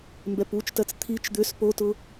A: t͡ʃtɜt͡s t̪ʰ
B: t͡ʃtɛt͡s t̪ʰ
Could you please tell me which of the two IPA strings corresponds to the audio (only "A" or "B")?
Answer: A